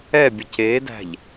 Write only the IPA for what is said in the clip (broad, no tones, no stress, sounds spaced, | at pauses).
ɛ bʲ ə c e d æ̤ ʎ